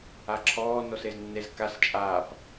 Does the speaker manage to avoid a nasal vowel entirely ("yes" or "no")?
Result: yes